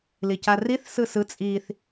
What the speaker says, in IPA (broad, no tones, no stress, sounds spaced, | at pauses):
l i c a r i θ s ɯ s ɯ t͡sʼ i θ